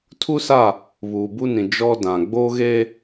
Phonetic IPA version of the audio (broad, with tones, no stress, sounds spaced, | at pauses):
tʰ u˦ s a˦˨ | β uː˨ b u˦ n ĩ˨ d͡ʒ ɔ˦ d ã˨ ɡ͡b oː˦ ɣ eː˦